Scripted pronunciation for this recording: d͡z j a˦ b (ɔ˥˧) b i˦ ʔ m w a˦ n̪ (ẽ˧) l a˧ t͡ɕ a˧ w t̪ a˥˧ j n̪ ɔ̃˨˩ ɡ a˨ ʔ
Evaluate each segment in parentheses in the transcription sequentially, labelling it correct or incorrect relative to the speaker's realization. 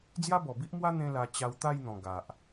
incorrect: ɔ˨˩, incorrect: ẽ˦

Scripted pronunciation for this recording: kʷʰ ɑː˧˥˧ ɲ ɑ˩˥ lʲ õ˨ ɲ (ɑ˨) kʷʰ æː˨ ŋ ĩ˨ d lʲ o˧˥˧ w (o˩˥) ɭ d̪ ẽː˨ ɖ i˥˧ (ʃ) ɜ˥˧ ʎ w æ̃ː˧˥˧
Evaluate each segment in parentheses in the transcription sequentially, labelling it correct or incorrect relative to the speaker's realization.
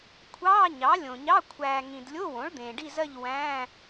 incorrect: ɑ˧˥˧, incorrect: õ˩˥, incorrect: z

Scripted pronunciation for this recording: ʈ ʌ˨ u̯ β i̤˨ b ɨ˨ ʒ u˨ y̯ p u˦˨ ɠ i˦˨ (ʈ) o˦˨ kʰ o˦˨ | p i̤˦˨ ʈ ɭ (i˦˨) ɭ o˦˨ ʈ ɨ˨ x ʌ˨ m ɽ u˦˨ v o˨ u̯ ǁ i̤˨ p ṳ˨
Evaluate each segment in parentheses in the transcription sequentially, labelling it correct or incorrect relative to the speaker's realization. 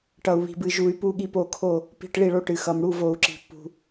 incorrect: p, correct

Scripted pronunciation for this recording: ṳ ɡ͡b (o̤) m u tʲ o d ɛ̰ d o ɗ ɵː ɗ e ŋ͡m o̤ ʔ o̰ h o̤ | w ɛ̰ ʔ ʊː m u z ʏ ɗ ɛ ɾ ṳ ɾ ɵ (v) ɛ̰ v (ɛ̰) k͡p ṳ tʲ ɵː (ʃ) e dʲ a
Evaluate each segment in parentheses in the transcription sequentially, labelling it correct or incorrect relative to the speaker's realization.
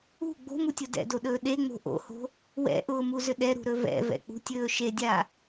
correct, correct, correct, correct

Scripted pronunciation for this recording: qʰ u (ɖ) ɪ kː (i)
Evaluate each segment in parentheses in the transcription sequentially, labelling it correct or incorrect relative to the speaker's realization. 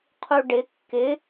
correct, incorrect: ɪ

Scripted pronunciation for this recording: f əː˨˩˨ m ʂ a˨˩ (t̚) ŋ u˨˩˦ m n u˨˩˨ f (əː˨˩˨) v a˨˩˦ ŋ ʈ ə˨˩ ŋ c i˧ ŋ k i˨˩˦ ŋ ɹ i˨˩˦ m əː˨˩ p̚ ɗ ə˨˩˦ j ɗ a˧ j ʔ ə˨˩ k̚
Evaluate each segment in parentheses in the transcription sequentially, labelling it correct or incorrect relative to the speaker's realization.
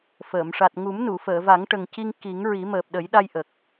correct, correct

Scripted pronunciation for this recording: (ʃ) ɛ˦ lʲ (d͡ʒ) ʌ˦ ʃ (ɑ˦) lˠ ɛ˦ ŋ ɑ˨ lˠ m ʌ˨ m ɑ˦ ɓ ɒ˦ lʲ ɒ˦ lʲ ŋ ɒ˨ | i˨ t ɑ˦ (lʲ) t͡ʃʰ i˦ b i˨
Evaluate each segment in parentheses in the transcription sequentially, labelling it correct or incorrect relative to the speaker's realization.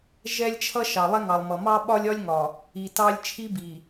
incorrect: ʒ, incorrect: t͡ʃʰ, incorrect: ɑ˨, correct

